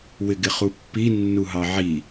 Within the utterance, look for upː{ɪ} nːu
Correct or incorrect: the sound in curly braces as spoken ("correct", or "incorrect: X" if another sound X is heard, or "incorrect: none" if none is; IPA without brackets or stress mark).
incorrect: i